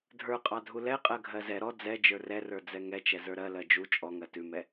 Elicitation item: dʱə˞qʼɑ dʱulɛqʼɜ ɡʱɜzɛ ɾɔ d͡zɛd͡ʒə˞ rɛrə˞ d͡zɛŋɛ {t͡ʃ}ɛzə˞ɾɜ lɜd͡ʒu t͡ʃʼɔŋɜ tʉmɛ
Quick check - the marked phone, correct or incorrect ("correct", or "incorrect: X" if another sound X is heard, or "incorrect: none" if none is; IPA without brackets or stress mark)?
correct